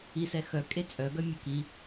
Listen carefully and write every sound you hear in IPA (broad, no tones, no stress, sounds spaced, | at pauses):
i s ɛ x œ kʼ e t͡sʼ œ ɡ œ mʲ ə k i